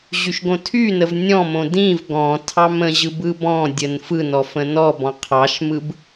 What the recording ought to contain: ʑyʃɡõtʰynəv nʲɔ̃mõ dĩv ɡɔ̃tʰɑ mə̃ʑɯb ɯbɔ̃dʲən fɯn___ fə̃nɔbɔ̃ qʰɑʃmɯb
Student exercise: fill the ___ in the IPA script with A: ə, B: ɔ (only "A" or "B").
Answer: B